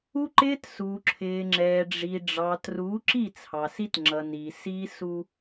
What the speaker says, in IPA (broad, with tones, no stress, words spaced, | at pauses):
u˦ǃɪː˦t suː˨ ǁʰɪː˨ŋ͡ǁɛː˨ɖ͡ʐi˨ ɖ͡ʐɑː˨tru˨˦ǁi˦˨ t͡sʰɑ˨si˦tŋ͡ǁʌ˨ni˨ si˦su˦